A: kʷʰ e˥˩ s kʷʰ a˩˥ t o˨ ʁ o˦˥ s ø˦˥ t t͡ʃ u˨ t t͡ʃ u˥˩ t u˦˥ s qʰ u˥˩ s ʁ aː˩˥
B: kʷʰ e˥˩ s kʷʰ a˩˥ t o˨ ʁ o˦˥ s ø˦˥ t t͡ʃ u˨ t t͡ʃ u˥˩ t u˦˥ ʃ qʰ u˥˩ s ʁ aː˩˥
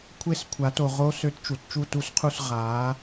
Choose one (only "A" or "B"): A